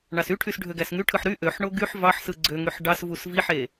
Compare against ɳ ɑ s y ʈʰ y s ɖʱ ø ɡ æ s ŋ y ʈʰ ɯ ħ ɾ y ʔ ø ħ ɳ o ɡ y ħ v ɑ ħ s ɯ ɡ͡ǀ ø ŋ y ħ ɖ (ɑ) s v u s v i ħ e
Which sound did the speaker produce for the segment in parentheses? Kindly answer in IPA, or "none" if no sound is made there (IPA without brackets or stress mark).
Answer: ɑ